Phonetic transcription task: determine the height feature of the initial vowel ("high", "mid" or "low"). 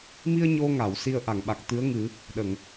high